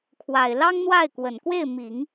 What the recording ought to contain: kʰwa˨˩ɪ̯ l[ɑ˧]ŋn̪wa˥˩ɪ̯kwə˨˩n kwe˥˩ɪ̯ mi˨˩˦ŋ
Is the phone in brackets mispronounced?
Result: yes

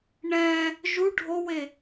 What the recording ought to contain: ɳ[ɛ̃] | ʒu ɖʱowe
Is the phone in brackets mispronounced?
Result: no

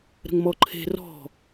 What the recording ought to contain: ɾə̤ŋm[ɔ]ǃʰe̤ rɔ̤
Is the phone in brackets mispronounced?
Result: no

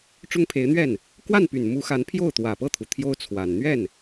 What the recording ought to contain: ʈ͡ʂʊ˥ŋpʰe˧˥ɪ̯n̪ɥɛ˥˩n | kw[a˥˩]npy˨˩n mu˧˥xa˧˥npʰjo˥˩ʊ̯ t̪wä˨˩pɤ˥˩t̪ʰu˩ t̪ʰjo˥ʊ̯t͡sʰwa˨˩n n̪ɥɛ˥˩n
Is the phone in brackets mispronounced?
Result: no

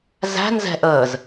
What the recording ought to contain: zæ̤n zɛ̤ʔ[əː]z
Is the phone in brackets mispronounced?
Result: no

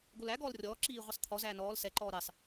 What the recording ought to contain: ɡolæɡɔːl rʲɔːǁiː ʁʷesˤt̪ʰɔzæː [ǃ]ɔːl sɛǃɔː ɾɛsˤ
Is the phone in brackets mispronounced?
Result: yes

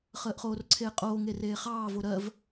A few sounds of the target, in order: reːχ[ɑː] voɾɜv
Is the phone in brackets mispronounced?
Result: no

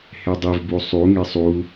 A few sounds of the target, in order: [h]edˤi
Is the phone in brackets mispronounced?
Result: no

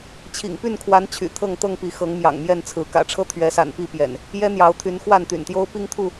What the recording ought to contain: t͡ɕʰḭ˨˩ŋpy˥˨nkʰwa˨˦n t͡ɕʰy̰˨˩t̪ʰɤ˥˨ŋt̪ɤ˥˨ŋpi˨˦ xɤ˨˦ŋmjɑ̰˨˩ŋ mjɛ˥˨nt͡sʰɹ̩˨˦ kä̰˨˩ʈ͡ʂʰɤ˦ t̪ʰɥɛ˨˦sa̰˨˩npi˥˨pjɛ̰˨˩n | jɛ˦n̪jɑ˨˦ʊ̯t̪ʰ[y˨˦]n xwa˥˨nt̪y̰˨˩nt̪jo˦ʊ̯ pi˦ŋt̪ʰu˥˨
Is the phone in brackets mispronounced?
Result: no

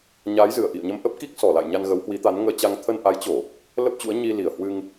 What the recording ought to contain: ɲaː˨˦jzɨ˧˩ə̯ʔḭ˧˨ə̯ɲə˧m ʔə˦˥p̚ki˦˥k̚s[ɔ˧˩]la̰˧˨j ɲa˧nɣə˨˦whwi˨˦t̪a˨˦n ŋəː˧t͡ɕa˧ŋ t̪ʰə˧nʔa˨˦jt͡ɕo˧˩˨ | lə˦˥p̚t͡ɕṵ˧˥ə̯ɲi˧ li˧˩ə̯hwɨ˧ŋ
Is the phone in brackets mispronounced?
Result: no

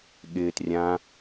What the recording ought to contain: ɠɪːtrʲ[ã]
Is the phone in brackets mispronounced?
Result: no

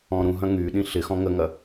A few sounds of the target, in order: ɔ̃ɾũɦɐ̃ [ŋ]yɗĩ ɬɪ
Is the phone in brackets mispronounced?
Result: no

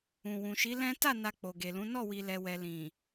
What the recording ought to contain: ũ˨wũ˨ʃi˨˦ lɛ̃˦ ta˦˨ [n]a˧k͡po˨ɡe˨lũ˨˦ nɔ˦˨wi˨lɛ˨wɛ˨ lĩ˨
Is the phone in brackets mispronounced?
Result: no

